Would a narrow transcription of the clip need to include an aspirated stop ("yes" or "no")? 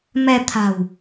yes